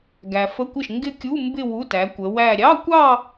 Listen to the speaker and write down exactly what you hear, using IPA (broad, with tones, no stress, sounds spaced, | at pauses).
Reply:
ɡ æ˨ f ə˧˥˧ kʷ ɪ˥˩ ʃ ŋ ɡ ɪ˥˧ kʲ u˧˥˧ m b ɪ˥˧ w u˧˥˧ t æ˨˦ kʷ ə˨˦ w æ˥˧ ɾʲ ɑ˧˥˧ kʷ ɑ˥˧